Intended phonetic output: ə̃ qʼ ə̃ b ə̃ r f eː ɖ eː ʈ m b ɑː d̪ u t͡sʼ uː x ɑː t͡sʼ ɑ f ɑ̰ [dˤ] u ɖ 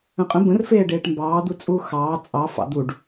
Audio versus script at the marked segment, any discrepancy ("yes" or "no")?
yes